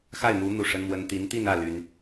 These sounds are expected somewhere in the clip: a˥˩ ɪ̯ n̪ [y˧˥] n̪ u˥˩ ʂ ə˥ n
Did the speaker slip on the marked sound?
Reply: yes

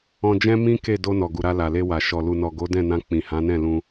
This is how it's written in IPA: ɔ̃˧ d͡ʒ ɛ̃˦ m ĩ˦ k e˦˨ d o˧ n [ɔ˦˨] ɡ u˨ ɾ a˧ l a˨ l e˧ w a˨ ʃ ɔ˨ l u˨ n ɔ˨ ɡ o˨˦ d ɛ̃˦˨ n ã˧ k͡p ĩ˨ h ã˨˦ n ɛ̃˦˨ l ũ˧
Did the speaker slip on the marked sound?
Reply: yes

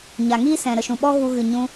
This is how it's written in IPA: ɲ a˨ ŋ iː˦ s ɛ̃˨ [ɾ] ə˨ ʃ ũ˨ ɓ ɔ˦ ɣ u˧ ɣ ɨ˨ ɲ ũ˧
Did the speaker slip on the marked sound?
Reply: no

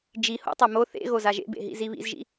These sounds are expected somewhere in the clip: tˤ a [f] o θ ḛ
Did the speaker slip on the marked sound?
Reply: yes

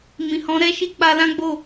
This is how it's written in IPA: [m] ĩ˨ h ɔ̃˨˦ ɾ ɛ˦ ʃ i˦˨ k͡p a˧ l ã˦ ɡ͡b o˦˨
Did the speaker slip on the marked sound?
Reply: no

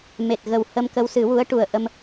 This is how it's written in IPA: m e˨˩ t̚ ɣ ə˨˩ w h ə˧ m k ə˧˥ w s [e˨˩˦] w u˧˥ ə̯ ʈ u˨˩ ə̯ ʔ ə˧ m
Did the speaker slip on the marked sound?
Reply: yes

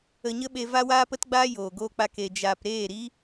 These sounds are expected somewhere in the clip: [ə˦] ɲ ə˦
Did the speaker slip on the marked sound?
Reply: yes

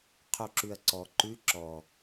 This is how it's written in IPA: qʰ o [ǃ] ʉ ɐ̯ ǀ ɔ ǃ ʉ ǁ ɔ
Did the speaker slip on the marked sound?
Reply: yes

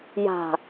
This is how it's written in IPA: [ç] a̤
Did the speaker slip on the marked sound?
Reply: yes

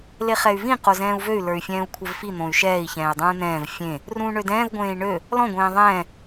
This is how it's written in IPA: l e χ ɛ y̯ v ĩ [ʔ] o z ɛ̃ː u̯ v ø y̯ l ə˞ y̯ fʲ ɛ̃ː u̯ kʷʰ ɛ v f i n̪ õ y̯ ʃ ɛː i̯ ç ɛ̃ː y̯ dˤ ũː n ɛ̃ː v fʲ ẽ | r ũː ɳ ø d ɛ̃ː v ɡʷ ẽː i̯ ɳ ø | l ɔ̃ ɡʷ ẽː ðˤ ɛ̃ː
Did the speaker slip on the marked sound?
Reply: yes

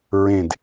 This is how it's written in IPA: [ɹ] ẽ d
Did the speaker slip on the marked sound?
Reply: no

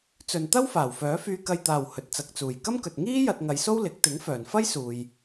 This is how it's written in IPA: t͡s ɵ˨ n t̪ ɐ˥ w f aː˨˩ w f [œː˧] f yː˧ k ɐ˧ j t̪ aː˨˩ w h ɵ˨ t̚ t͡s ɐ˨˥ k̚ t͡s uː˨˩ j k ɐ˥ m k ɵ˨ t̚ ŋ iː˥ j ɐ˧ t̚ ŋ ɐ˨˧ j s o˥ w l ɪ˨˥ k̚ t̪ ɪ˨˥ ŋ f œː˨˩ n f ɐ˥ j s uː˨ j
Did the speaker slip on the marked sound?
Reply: yes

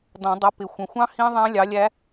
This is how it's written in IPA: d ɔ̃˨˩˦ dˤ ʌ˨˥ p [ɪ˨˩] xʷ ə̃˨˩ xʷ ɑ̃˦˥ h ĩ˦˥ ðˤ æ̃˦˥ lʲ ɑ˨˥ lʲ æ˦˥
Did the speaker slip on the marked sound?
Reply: no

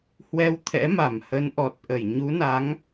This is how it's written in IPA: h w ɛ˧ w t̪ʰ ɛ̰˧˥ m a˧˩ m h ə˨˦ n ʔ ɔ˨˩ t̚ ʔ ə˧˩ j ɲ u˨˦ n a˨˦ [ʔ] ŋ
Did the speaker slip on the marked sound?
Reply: yes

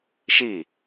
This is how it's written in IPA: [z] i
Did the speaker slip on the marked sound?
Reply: yes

